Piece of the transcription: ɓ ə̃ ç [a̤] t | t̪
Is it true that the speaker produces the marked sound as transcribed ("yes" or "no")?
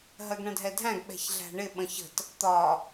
no